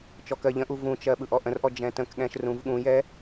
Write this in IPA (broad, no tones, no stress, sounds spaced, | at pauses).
t͡ʃ ɔ k ɜ ʎ ə̃ ʔ u v ũ t͡ʃ ɜ ɓ ɯ ʔ ɔ ʔ ə̃ r ʔ ɔ d͡ʒ ɛ̃ t ə̃ k ɠ ɛ̃ ʃ r ũ v ɠ ũ j ɛ